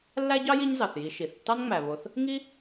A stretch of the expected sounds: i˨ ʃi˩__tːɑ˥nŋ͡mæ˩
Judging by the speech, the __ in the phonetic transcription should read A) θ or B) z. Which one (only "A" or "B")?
A